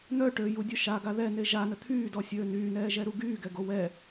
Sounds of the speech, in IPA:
n̪ œ ʈ ø j u dʲ œ ʃ a ɡ a ð ɛ n e ʒ a n ə t̪ʰ yː d ɔ sʲ øː n yː n ɛː ʒ ɛ ɾ u ɡ yː ɡ ɛ ɡ o w ɛ

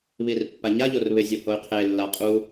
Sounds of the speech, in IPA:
β i r pː a ɲ a ʎ o r β ɪ zʲ o h o y̯ qʰ e lː a qʼ u

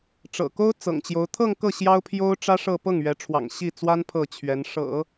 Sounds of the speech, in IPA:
ʈ͡ʂ ɤ̰˨˩ k o˥ ʊ̯ t͡s ɤ̰˨˩ ŋ t͡ɕ j o˧˥ ʊ̯ t̪ʰ ɤ˥˧ ŋ k ɤ˥˩ ɕ j ɑ˥ ʊ̯ pʰ j o˥ ʊ̯ ʈ͡ʂ ä˥ ʂ ɤ˥˧ p ɤ˥˩ ŋ ɥ ɛ˧˥ ʈ͡ʂʰ w ɑ̰˨˩ ŋ ɕ i˥˩ t͡s w a˥ n pʰ ɤ˥˩ t͡ɕʰ ɥ ɛ˧˥ n ʂ ɤ̰˨˩˦

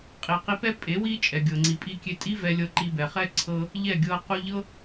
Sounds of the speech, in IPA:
qʼ i˨ q i˧ p ɛ˦ pʼ e˨˦ w i˧ t͡ʃʼ ɛ˨ ɡʲ ɤ˨ ŋ͡ǀ i˨ pʼ i˨ kʲ e˨ tʼ i˦ v ɛ˧ lʲ ɤ˧ ǃ i˧ b ɛ˨ χ ɛ˦ ǀʰ ɤ˧ | ʎ ɛ˦˨ ɡʲ ɤ˧ q u˧ ʎ ɤ˦

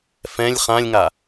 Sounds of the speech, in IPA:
f ɛ̃ lʲ χ ã lʲ ŋ a

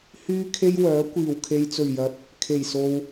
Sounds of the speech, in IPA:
h yː˥ kʰ e˥ j w œː˨˥ kʷ iː˨˩ w kʰ e˨ j t͡s ɵ˨˩ ɥ j ɐ˨˥ t̚ | kʰ e˨˩ j s o˨ w

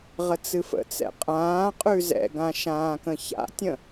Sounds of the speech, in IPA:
ʁ ə t͡s ɨ f ə̰ t͡s ɛ̰ qʼ ãː qʼ ʉ z ɛ̰ ɡ ã ʃ ãː k ə̃ ç a̰ tʲ ə̃

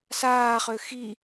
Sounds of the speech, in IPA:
s aː χ ø x i

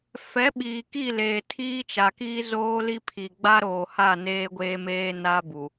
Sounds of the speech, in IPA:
f ɛ˨˦ ɓ iː˨ k i˦˨ l eː˨ tʰ iː˦ t͡ʃ a˨ k i˦ z oː˦ l i˦ pʰ i˨ ɡ͡b a˦ ɾ oː˨ h a˦˨ n eː˦ ɡʷ eː˦ m eː˦ n a˦ b u˨

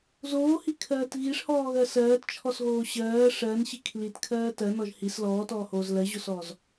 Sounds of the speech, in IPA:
z oː h i kʰ ɜː t ɣ i ʂ h ɔː ɣ ɜ s ɜː t t͡ʃʰ ɔ s ɣ oː ɕ ɜː ʂ ɜ n ɕ i kʰ l i t kʰ ɜː t ɜ n ɔ ʒ h i s l ɔː t ɔː h oː z l ɜ ʑ o s ɔː z

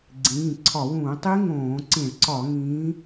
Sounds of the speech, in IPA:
ɡ͡ǀ ĩː˩˧˩ ǀʰ ɒ˧˩˧ w ũː˧˩˧ tˤ i˦˥ ŋ õː˧˩˧ ǀ ĩ˧˩˧ ɭ ǀ ɒ˧˩˧ ŋ ĩː˨˦

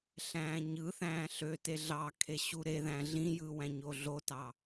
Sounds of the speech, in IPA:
ɬ æ̃ː ɲ ɯ θ æ̃ː ɬ ø t e ɮ ɑ kʰ e ɕ u ɾ e ð æ̃ ɮ ĩ j ɯ w æ̃ ɲ o ɮ o t ɑ

